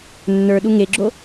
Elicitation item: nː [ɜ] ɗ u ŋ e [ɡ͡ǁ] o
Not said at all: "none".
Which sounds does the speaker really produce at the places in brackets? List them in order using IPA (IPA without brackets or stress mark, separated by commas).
ə˞, ɡ͡ǁ